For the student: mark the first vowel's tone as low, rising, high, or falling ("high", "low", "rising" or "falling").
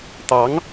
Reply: rising